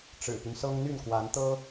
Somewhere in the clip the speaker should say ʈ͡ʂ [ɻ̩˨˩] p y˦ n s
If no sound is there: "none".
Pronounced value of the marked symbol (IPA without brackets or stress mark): ɻ̩˨˩